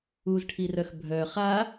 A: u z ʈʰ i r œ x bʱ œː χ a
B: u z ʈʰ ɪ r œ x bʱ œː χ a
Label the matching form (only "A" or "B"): A